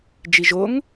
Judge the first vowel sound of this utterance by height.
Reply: high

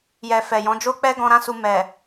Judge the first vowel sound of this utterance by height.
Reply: mid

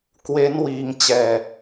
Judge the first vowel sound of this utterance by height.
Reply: mid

